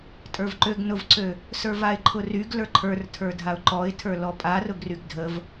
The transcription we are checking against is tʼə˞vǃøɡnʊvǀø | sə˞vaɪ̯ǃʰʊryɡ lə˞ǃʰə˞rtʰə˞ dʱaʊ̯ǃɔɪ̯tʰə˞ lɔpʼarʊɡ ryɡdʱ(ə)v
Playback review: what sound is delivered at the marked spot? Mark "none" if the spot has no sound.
ə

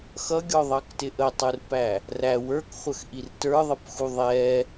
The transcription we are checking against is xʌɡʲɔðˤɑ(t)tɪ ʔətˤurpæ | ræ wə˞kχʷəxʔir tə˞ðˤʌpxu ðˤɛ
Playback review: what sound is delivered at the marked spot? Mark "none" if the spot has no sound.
k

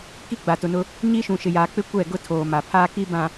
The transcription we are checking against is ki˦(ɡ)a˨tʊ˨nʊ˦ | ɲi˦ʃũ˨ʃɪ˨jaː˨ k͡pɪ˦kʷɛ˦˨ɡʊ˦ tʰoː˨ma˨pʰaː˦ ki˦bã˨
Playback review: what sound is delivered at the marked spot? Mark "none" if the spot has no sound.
ɡ͡b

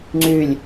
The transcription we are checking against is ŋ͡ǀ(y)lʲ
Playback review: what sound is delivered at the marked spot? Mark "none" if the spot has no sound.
y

